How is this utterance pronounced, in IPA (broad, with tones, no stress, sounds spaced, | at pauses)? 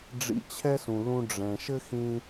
ɖ͡ʐ ḭ˧ t͡ɕʰ ɛ˦ s ũ˨ l ũ˧ ɖ͡ʐ ɛ̃˨ ʃ ɘ˦ x ĩ˧